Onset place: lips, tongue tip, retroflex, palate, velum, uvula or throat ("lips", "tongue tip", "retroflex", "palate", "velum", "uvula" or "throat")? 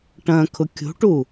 retroflex